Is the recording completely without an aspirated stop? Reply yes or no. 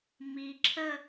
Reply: no